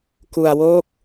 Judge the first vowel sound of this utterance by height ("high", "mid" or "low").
high